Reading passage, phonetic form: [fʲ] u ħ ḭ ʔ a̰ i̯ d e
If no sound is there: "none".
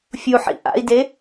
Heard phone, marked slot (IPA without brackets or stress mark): fʲ